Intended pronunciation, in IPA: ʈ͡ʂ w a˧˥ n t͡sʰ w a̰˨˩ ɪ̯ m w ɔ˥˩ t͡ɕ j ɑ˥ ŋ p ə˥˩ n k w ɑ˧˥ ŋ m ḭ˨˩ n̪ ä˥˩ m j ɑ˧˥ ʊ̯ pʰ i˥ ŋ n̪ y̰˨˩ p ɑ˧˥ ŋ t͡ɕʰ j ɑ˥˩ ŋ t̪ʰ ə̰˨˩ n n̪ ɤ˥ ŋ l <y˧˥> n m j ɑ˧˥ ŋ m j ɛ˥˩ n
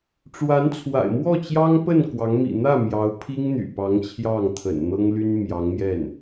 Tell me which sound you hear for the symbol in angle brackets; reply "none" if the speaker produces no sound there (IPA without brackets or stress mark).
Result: y˥